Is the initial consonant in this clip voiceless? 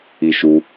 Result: yes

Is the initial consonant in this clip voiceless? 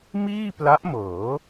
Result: no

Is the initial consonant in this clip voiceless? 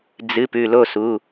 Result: no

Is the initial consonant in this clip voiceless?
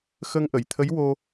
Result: yes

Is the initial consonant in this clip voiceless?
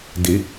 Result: no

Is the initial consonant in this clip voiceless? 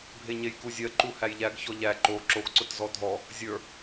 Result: no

